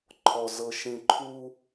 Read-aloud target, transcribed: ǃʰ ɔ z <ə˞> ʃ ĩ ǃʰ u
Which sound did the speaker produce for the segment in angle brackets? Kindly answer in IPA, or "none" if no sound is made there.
ɤ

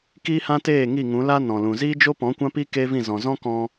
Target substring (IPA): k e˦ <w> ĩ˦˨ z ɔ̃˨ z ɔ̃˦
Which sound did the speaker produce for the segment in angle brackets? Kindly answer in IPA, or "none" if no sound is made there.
v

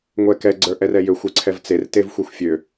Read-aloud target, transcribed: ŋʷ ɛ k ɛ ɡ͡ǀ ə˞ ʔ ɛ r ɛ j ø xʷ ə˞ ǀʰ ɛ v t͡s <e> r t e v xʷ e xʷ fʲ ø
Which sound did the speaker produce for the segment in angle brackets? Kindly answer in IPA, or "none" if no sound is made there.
e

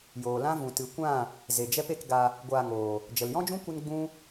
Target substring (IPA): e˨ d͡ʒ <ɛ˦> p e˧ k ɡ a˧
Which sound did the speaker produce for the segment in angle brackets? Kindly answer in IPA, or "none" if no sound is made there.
ɛ˦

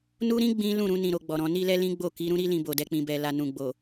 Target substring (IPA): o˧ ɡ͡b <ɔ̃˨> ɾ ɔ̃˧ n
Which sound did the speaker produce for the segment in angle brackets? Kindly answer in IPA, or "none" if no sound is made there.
ɔ˨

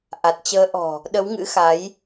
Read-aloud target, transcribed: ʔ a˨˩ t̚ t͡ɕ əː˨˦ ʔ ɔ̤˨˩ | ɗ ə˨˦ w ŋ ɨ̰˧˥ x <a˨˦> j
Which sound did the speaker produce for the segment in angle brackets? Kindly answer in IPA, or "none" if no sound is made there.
a˨˦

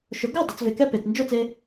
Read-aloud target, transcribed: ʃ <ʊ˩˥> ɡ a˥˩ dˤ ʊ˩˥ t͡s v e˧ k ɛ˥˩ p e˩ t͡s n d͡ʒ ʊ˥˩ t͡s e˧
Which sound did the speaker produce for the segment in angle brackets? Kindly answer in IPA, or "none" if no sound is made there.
ʊ˩˥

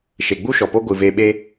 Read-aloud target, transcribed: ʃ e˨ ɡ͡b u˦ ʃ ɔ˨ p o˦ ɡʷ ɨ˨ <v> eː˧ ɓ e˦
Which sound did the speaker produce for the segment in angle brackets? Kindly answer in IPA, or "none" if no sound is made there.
v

